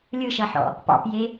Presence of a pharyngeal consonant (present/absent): present